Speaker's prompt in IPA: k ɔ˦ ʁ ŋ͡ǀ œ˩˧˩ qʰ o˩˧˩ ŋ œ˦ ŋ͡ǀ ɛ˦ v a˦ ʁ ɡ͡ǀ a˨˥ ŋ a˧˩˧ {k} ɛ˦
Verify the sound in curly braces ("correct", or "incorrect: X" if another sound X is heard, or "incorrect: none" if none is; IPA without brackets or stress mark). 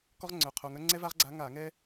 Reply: incorrect: ŋ